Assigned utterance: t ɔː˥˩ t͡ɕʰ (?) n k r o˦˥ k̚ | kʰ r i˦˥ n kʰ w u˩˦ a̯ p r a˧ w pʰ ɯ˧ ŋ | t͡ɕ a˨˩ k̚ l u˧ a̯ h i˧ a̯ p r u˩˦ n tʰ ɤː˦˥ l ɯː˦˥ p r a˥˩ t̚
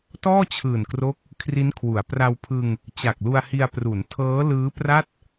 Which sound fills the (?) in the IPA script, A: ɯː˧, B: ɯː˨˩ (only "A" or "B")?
B